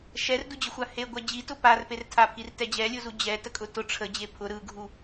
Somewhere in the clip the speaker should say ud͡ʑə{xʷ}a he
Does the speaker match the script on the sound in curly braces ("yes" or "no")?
yes